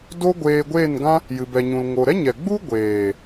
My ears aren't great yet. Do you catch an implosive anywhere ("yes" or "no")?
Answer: no